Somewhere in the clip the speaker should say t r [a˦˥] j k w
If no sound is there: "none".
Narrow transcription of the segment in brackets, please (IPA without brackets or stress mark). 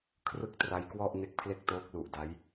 a˦˥